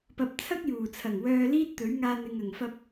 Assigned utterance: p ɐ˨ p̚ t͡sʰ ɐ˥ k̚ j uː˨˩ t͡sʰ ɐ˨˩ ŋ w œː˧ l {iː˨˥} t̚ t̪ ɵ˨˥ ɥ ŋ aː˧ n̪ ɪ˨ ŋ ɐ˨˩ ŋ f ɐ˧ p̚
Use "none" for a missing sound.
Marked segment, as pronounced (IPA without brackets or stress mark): iː˥